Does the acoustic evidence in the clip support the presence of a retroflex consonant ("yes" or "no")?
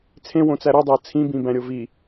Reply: no